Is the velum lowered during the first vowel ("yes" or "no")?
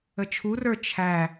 no